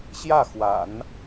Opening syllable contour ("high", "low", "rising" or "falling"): falling